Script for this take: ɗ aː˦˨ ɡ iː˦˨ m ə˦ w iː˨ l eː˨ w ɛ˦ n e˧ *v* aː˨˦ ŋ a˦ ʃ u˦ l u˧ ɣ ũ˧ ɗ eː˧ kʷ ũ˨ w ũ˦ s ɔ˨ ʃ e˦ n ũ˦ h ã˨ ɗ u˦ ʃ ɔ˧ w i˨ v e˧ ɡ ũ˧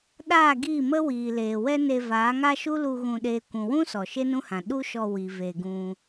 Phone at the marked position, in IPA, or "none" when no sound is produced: v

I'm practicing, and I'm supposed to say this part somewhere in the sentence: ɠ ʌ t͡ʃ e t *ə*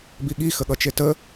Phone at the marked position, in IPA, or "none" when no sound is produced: ə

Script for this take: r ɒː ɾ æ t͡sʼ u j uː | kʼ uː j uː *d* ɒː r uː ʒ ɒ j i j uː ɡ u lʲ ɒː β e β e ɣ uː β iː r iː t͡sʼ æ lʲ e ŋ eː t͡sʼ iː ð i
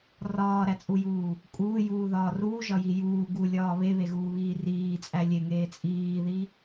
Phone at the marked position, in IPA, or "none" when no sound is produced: ð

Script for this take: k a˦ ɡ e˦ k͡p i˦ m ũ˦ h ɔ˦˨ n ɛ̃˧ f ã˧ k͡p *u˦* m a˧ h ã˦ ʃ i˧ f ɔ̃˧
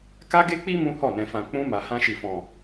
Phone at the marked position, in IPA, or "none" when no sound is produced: ũ˦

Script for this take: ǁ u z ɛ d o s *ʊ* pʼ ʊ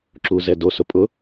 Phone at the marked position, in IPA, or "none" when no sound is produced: ʊ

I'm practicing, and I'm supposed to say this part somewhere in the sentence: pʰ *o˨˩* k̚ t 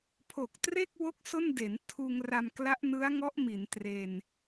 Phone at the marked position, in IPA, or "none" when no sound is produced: o˨˩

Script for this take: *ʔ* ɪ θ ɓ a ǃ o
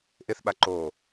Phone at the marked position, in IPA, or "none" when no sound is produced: ʔ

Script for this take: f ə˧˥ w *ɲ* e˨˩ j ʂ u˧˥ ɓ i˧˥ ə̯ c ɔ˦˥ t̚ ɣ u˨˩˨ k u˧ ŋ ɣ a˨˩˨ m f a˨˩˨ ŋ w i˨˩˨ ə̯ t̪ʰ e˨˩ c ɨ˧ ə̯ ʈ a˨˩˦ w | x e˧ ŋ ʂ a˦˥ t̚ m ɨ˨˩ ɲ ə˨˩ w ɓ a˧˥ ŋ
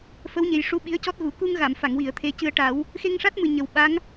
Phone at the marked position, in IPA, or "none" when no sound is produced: ɲ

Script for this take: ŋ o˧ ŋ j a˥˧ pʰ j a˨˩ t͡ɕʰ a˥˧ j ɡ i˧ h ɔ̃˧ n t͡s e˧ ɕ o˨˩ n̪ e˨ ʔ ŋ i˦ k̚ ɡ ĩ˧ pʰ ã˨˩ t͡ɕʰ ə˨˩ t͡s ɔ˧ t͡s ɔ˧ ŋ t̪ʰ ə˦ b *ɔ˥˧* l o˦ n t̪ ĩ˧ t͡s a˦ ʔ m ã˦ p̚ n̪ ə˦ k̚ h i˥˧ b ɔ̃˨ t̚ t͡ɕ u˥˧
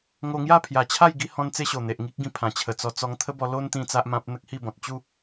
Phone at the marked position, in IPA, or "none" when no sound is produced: ɔ˧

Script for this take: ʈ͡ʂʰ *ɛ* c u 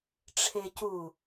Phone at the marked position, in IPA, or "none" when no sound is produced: e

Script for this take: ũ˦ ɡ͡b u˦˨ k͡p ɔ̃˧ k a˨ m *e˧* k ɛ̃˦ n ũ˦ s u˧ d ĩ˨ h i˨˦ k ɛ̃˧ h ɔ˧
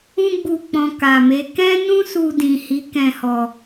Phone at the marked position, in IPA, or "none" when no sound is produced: e˨˦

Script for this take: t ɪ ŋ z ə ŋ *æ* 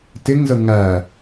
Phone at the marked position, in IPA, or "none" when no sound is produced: æ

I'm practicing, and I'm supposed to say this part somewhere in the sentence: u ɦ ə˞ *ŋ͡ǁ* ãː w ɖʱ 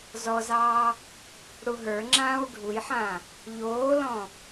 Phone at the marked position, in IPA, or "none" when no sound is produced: ŋ͡ǁ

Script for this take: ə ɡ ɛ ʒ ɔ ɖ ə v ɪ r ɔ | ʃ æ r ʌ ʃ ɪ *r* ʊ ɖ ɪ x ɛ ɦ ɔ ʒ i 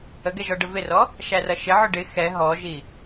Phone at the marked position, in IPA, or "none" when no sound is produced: ʕ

